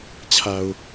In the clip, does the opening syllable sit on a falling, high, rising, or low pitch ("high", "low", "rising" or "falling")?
low